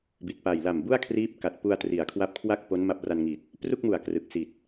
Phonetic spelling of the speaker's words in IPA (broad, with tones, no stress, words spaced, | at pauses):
bi˨˩t̚pa˨˩j la˨˩mbu˥˩a̯kʰriː˦˥p̚ ka˨˩t̚ pu˧a̯tri˩˦a̯kʰwa˦˥p̚kʰwa˥˩k̚ po˦˥n ma˦˥p̚ra˧nŋi˨˩t̚ | pru˥˩k̚mu˨˩a̯ krɯ˨˩k̚si˨˩t̚